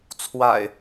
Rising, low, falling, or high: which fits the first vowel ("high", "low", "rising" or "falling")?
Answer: low